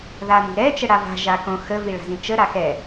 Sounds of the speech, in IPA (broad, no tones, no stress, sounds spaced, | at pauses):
ð a n i̤ ɾ ɛ t͡ʃ ə ɽ a v a̤ ʒ a k õ x ə v i ɭ a̤ z ĩ t͡ʃ ə ɾ a x ɛ